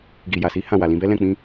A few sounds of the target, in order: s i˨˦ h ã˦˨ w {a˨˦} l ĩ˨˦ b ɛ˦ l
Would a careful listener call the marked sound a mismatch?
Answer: yes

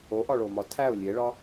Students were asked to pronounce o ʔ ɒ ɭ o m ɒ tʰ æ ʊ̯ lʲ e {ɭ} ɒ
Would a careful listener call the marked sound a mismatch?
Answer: no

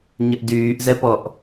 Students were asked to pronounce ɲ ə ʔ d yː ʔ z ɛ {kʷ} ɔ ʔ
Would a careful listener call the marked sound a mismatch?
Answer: yes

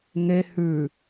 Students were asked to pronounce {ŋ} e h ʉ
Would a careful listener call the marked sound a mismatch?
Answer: no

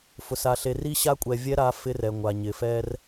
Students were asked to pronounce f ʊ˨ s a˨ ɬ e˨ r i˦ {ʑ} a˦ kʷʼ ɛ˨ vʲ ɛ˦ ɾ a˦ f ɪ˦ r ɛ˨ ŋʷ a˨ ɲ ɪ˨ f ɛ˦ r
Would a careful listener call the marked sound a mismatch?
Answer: yes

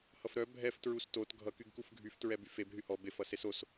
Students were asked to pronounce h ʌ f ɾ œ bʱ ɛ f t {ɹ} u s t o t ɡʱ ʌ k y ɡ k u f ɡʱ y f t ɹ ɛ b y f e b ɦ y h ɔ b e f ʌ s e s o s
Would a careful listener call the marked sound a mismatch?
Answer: no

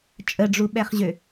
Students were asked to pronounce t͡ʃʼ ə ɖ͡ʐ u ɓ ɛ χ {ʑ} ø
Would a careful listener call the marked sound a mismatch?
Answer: no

